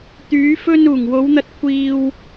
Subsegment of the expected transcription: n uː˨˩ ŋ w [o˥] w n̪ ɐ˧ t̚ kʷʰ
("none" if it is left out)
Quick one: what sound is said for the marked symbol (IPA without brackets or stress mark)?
o˨˧